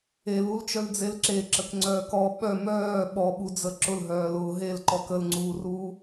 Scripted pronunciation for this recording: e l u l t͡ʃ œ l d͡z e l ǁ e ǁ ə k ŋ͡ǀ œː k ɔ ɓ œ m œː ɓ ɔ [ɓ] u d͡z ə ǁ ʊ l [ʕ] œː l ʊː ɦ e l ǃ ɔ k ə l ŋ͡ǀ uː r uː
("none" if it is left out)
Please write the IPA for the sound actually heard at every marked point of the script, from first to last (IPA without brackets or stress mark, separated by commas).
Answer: ɓ, ɦ